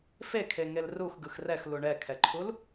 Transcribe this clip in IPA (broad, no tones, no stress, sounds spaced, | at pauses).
f e kʰ e ŋ e l r u x ɡ ɯ x r ɛ x l u ɳ ɛ kʰ ɛ ǃʰ u l